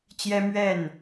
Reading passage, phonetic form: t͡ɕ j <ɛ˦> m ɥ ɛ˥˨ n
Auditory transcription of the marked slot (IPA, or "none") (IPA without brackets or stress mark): ɛ˦